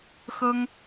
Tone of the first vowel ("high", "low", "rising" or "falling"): high